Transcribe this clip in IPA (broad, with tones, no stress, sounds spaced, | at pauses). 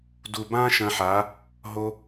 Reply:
d u˨ b ã˦ ʃ ɐ̃˧ ħ a˨˦ | ɦ o˧